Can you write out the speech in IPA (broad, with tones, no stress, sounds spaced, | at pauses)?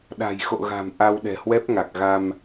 ɗ a̤˨˩ j x o̰˧˨ ɣ a̤˨˩ m ʔ a˧ w ɗ ɛ̤˨˩ h w ɛ˦˥ p̚ ŋ a˨˩ k̚ ɣ a˧ m